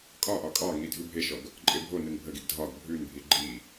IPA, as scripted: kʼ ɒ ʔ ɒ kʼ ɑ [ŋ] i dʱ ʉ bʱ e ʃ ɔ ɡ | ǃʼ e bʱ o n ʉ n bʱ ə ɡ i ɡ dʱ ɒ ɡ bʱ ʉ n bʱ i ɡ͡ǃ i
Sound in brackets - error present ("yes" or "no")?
no